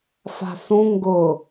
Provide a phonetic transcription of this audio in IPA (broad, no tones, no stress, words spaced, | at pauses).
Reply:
fa̤sũ ŋɡʊ